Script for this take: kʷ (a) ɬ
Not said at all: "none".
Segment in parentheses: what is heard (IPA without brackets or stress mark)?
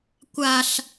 a